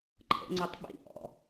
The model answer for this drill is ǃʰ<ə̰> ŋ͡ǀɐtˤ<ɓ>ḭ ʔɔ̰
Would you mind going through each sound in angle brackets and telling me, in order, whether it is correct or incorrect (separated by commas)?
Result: correct, correct